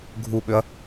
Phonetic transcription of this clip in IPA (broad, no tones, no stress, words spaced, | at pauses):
ɡʱuɓøɐ̯